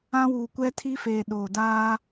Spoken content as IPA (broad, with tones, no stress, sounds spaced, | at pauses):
ã˦ w uː˨ kʷ ɛ˦ tʰ i˦ f eː˨ ɗ oː˨ d aː˦